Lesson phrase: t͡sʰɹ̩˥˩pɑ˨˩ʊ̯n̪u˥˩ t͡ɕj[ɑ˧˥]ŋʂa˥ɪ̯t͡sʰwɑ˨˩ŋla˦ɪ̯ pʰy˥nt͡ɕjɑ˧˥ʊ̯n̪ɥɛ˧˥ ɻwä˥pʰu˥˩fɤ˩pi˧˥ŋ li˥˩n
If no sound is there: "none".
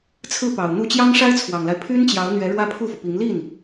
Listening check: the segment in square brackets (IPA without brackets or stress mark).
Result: ɑ˥